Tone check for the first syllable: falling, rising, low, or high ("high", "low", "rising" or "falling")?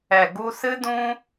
low